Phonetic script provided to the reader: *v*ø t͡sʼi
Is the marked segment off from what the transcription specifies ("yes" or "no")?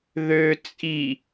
yes